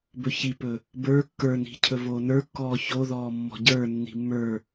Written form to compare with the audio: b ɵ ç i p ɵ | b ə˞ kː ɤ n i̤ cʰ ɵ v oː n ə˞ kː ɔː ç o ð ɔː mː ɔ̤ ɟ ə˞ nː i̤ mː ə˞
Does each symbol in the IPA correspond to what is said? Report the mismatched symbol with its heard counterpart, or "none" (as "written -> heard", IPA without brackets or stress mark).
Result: ɤ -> ə˞